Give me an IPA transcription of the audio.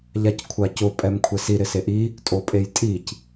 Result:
ʎ a c kʷʰ a c ʊ pʼ ɛ m kʷʰ ɛ s i ɾ ɪ s e ʔ i | tʼ o pʼ e j tʼ i c

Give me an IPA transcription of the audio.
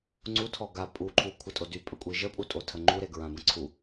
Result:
ŋ͡ǀ u tʰ ɔ ɡ a pʼ u ǃʰ u kʷʰ ə tʼ o d y pʼ ə kʷʼ i ʒ ə pʼ u tʼ o tʰ ə ŋ͡ǃ u ɾ e ɡ ɹ ã b ə̃ ǀʰ u

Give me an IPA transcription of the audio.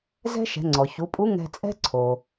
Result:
z ɛ̤˥ ʃ ɛ̤˩˧ ŋ͡ǀ ɔ˩ ç u˩˧ pʼ u˧˥ ŋ ɛ̤˧ t͡sʼ ɛ̤˥ ǀʰ o˩

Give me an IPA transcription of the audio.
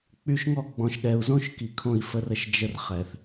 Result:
k͡p y˨ ʃ ŋ ɔ˦˨ ɡ͡b ɔ̃˨ ʃ ɠ ɛ˨ u̯ z õ˦ ʃ k i˨ kʰ õ˦˨ i̯ f ə˦ r ə˦ ʃ d͡ʒ ə˦ r χ ɛ˨ θ

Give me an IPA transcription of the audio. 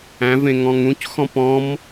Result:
æ̃ v ẽ ŋ ɔ̃ ŋ ũ c x ɔ̃ p ɔ̃ m

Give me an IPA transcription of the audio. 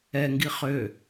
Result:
ɛ ŋ ɡ i χ ø

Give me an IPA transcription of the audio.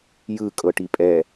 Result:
j ɯ kʼ ɤ ʈ i pʼ ɛ

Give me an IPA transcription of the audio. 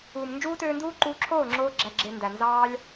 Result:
uː˨ m n d͡ʒ uː˦ t øː˧ n d uː˦ ǃ uː˧ ǁʰ oː˦˨ ŋ͡ǁ oː˧ ɡ͡ǁ æ˨ ɡ͡ǁ e˨ n d æ˨ n z ɑː˦ lʲ

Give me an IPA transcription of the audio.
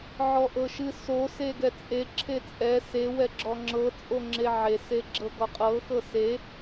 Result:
ʕ ɔ ʔ ɤ ʃ ɨ s o s e ɡ ɛ t͡sʼ e ǁʰ e t͡sʼ ɛ s e w ɛ ɡ͡ǁ ɔ ŋ͡ǁ ɤ t͡sʼ o ŋ͡ǁ e ʕ e s e ɡ͡ǁ ɤ ɡ ɔ qʼ ɤ x ɤ s e

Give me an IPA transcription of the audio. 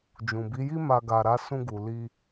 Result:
d͡ʒ ũ˨ b i˨˦ j i˦ m a˧ ɡ a˧ ɾ a˦ s ũ˧ ɡ u˨ l i˧

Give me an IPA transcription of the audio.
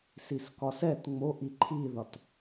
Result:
s i s k ɒ s ɛ t ŋ͡m o ʔ i ǃʰ i ð ɒ t

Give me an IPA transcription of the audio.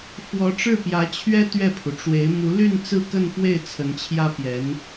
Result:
f w ɔ˧˥ ʈ͡ʂ ɻ̩˥˩ p j ä˧˥ t͡ɕʰ ɥ ɛ˥ t̪ ɥ ɛ˥˩ pʰ u˩ ʈ͡ʂ w e˧˥ ɪ̯ m u˧˥ l y˥˧ n t͡s ɹ̩˥˧ k ə˥˧ n f w e˥˩ ɪ̯ t͡sʰ ə˧˥ n t͡ɕʰ j ä˥ p j ɛ˧˥ n

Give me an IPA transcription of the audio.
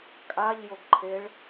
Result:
kʼ a ʎ j o ɡ ǃʰ e ɭ

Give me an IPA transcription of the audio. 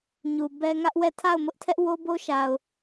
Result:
ɲ u˨ b ɛ˦ ŋ ä˦ ʔ w ɛ˦˨ tʰ a˦˨ ʊ̯ m ʊ˦ ʔ tʰ ɛ˦ ʔ w o˦ b o˦ ʃ a˨ ʊ̯

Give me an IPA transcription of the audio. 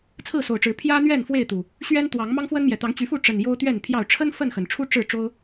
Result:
t͡sʰ ɹ̩˥˨ s o˨˩ ʊ̯ ʈ͡ʂ ɻ̩˨˦ pʰ j ä˦ n̪ ɥ ɛ˥˨ n f w e˥˨ ɪ̯ t̪ u˨˩ | ɕ ɥ ɛ˦ n t̪ w ɑ˨˦ ŋ m ɑ˦ ŋ f w ə˦ n m j ɛ˨˩ t̪ ɑ˨˦ ŋ t͡ɕ y˨˦ f u˥˨ ʈ͡ʂ ə˨˩ n j o˦ ʊ̯ t̪ ɥ ɛ˥˨ n pʰ j ɑ˥˨ ʊ̯ ʈ͡ʂʰ ə˦ n f ə˥˨ n x ə˩ n ʈ͡ʂʰ u˦ ʈ͡ʂ ɻ̩˥˨ ʈ͡ʂ o˦ ʊ̯

